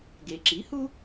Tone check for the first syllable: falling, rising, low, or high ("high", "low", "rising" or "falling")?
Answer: low